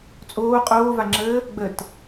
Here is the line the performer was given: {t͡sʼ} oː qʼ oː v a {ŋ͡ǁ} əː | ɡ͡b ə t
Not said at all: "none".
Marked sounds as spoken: t͡sʼ, ŋ͡ǁ

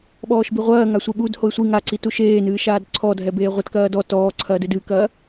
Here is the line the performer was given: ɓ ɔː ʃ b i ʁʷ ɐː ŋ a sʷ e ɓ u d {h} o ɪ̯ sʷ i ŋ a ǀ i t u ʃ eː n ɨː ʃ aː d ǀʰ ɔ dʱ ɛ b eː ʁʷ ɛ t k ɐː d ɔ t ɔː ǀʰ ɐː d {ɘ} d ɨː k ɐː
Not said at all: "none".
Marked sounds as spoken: h, ɘ

